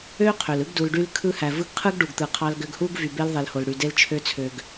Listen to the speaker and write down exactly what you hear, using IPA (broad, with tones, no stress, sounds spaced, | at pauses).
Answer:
ø˦ qʰ ø˨ l ɯ˦ ɡ d u˧ l ɖ y˦ l kʰ ɯ˧ h æ˨ v ɯ˧ ɡ qʰ ɯ˦ ɡ ɖ u˨ ɡ t̪ ɯ˨ qʰ ɑ˧ l ɡ ø˧ ɡ h u˦ ɡ v y˨ b e˧ l ðˤ e˨ l h o˨ l ɽ y˨ d e˧ l t͡ʃʰ ø˧ t͡sʰ ø˨ ɡ